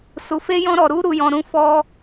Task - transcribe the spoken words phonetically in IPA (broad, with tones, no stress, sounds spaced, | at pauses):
s u˧ f e˦ j ɔ̃˦ ɾ ɔ˧ ɾ u˦ ɾ u˧ j ɔ̃˧ ɾ ũ˦ f ɔ˦